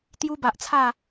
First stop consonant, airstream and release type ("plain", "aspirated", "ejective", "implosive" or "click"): plain